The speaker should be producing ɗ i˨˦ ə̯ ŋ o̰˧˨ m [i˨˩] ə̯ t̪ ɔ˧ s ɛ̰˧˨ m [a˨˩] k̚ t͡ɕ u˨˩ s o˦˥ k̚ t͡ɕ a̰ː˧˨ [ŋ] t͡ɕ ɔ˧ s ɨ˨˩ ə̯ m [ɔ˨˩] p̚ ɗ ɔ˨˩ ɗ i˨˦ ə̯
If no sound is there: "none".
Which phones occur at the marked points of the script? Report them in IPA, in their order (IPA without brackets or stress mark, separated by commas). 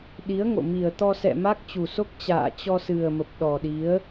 i˨˩, a˦˥, none, ə˨˩